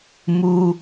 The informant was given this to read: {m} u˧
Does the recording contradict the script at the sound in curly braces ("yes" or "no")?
no